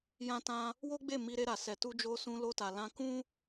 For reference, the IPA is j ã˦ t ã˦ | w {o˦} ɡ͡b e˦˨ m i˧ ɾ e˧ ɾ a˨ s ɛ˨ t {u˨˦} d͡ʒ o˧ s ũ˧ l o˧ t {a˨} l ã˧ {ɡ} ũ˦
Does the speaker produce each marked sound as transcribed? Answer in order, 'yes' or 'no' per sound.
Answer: yes, no, yes, no

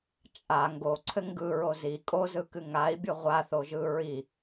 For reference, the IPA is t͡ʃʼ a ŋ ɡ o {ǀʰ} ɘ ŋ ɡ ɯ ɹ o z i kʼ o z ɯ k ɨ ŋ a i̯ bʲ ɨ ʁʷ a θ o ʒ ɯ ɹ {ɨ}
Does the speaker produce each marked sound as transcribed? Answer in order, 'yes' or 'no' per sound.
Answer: yes, no

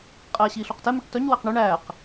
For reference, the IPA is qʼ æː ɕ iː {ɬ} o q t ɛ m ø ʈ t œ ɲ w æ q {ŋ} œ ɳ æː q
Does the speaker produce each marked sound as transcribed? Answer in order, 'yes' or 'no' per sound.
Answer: yes, no

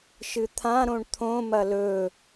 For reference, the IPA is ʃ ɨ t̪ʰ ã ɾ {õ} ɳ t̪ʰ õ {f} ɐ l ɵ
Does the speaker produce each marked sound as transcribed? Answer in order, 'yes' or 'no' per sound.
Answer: yes, no

